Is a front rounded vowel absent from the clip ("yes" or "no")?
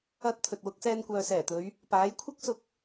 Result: no